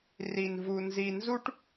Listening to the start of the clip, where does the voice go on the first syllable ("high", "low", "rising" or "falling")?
low